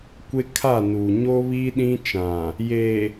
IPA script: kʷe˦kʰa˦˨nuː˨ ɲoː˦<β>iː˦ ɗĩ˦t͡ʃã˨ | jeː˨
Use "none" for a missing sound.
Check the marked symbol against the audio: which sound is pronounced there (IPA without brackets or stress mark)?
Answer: β